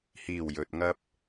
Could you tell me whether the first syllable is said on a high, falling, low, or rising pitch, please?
low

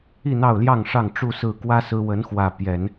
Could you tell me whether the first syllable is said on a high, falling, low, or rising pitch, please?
falling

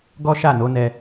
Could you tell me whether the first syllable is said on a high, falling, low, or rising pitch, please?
high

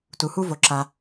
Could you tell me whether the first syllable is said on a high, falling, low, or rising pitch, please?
low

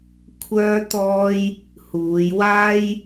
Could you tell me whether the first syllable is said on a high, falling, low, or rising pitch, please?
high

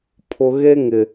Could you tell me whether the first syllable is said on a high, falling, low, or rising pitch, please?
low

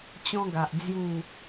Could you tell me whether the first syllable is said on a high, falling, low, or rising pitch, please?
high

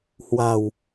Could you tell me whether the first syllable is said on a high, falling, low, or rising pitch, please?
low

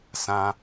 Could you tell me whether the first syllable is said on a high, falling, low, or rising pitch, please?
high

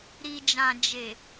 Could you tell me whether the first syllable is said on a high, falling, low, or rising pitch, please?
low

